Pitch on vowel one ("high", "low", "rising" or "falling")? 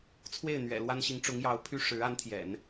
falling